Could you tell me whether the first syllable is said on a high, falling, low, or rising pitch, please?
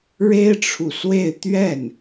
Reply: high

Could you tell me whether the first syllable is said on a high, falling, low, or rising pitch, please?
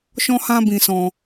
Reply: high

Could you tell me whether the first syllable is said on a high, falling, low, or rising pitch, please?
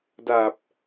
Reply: low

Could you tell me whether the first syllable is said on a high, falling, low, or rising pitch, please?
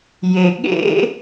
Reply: low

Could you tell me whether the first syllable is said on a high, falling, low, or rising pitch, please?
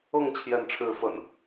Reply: falling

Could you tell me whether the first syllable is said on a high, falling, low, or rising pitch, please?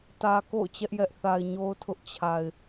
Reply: low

